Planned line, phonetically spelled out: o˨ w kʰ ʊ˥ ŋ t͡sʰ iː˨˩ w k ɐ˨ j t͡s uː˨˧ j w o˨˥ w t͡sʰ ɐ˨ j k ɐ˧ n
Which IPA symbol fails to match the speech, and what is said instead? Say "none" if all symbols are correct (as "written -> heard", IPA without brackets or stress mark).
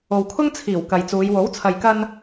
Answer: none